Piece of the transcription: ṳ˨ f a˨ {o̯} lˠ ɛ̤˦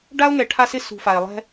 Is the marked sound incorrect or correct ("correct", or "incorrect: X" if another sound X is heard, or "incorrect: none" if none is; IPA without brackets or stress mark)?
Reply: incorrect: e̯